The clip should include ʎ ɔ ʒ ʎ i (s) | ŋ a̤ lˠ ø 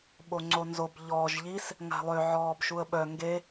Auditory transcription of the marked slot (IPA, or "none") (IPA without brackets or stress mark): s